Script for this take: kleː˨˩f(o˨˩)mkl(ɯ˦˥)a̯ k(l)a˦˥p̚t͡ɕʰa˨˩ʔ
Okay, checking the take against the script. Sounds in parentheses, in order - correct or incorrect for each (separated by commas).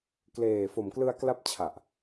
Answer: correct, incorrect, correct